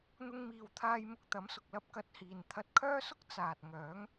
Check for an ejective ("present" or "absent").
absent